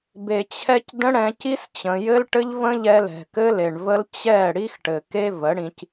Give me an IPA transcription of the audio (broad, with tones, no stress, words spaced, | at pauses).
be˨t͡ɕʰɛ˧c də̃˦ɽɛ̃˧ ci˦s t͡ɕə̃˨jɘ˦l ʈɘ˦ʎvə̃˦ʎɛ˧lɛ̤˨ kɘ˦le˨ɳvə˦l t͡ɕɛ˦˨ ɽi˦xʈɘ˨ke˦ və˨˦ɽĩ˧c